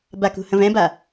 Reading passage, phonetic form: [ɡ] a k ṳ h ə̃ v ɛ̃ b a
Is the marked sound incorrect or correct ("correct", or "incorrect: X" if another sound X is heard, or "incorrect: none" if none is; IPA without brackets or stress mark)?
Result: incorrect: b